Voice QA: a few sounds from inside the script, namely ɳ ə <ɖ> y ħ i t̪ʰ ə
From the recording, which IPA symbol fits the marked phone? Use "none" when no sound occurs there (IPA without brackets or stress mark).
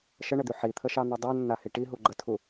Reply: d̪